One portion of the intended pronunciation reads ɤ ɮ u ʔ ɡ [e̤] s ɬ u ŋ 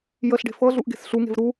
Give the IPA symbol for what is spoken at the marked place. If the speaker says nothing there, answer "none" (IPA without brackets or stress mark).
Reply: e̤